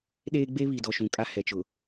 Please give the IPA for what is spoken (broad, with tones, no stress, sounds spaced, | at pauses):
ɗ eː˦ ɡ͡b e˦ β i˨ d ɔ˨ ʃ ũ˨ kʼ a˦ h ɛ˨ t͡ʃ ʊ˨